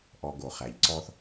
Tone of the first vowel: low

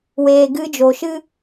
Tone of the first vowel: low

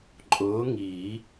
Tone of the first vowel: rising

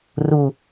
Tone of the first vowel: low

